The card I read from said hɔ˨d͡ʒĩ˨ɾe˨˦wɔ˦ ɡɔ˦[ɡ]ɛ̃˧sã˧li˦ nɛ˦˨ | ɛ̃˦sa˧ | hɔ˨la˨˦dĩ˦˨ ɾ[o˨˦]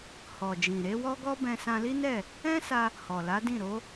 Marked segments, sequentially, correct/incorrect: incorrect: b, correct

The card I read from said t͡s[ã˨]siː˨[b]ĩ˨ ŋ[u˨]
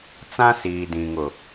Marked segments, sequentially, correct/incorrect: incorrect: ã˦, incorrect: d, incorrect: ʊ˨

